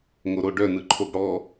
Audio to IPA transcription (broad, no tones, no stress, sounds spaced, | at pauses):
ŋ o ɾ o ɖ œ n ɯ ǃʰ o ɡ ɽ ɔ